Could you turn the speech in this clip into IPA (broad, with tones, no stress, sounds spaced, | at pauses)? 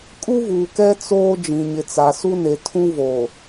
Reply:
kʼ u˦ v uː˨ k ɛ˦ t͡s oː˦ d͡ʒ ĩ˨ ɲ ɪ˨ t͡s a˨ s u˦ n e˨ tʰ ũ˦ v oː˨